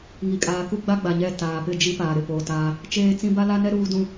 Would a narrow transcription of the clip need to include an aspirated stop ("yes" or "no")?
no